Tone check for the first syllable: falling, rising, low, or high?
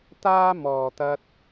high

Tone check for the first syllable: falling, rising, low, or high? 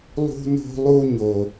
high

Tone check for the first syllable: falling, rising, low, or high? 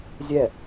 falling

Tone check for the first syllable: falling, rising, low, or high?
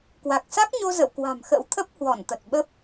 low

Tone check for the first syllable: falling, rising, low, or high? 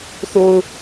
low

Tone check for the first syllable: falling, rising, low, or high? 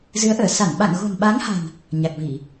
rising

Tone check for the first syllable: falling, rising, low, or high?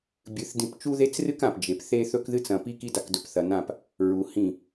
rising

